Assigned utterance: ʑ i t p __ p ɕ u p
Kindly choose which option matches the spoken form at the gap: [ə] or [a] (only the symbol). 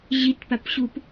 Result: a